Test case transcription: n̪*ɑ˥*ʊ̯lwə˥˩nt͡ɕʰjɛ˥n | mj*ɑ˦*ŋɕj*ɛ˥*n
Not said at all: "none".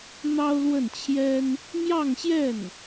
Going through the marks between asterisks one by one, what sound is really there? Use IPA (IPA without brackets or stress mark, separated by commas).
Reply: ɑ˥, ɑ˥˧, ɛ˥˩